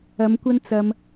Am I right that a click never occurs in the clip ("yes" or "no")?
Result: yes